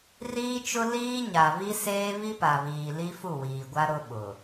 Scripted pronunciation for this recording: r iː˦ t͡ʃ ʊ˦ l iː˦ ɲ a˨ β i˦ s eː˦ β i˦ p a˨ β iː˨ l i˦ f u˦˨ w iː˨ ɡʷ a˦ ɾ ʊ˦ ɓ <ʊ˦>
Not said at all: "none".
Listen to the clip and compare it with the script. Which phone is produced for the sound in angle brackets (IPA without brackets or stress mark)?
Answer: ʊ˨